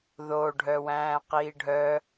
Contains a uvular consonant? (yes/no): yes